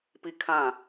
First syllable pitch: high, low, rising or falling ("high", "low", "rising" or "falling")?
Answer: high